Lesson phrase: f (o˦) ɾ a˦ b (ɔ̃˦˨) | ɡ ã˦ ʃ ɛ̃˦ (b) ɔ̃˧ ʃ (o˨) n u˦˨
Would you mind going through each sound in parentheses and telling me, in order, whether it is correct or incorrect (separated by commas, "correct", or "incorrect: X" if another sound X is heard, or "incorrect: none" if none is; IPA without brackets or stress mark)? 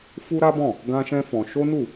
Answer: incorrect: u˦, correct, incorrect: f, incorrect: o˦